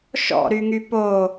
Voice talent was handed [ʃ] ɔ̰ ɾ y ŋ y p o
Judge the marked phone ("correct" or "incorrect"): correct